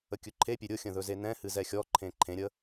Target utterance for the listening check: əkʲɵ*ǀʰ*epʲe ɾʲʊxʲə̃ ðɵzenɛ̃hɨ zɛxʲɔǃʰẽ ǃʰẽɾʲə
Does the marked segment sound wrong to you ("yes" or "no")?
yes